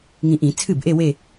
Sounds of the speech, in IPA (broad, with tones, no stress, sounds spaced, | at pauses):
ŋ ĩ˨ ʔ ĩ˨˩˦ t͡sʰ ɨ˥˩ b ʔ e˥˧ w e˥˧